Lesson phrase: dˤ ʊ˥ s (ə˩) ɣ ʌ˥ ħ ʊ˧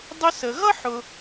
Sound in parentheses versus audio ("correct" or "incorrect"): incorrect